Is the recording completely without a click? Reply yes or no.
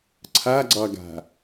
no